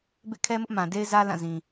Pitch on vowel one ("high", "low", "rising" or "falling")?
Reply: falling